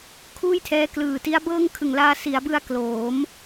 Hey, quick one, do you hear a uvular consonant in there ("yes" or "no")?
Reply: no